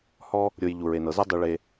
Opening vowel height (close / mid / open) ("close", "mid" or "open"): mid